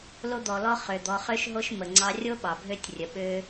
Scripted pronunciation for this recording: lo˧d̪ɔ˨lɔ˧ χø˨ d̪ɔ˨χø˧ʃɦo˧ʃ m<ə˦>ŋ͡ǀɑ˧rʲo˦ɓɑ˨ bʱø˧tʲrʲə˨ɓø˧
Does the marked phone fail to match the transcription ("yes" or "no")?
yes